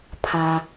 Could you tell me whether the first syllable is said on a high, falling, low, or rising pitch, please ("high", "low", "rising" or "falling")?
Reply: low